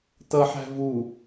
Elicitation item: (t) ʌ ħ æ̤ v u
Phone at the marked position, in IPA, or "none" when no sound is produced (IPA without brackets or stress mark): t